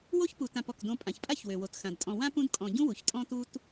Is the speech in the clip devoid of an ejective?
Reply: no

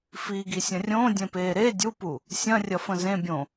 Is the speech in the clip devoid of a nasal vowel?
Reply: no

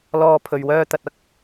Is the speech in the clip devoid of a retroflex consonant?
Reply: yes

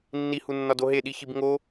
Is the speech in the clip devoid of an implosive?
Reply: no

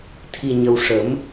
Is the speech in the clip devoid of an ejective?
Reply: yes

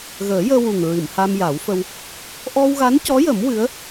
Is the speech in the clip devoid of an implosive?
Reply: yes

